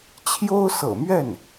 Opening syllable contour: high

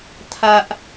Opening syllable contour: low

